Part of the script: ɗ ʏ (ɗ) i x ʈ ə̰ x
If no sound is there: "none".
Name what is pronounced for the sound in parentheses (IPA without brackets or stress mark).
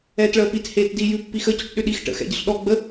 ɗ